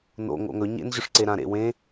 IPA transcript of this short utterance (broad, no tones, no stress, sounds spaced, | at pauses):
n o̰ ŋ o̰ ŋ ɵ ɲ ḛ n ʑ ɵ ʂ ǀ e ɾ ã ɾ ḛ w ẽ